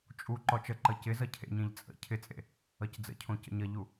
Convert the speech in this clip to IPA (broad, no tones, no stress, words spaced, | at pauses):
t͡ʃʼu ǃɔt͡ʃəǃʌ cɪ zʌcʰḛɲẽʎ t͡sʼə̰ cʰɪt͡sʼḛ | ʌcd͡zə̰cʰõ cə̰ɲʌʎu